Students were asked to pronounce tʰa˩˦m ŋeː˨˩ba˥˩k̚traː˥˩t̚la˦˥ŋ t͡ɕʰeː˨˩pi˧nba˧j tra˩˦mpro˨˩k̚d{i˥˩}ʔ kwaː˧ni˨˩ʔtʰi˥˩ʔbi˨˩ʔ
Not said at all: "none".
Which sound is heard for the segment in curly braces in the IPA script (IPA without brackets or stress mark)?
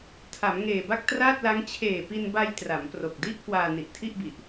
i˥˩